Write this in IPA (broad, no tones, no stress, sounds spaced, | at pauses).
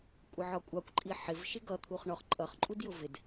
kʷʼ ə ʕ ɒ kʷʼ ɑ kʷ ǃʼ i ħ ɪ v ʃ ɪ ɡ ʌ t̪ʰ u χ ɳ ɔ χ ǃʼ ʌ χ ǃʼ u d j ʊ v ɪ d